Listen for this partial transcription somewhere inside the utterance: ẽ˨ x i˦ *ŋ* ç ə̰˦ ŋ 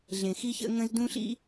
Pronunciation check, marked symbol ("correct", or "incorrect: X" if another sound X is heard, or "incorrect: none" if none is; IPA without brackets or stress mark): incorrect: none